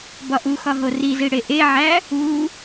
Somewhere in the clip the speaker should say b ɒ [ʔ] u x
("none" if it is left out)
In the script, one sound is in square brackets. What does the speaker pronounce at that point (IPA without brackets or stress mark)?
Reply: ʔ